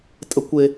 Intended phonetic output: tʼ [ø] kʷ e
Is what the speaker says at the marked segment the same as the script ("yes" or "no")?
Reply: no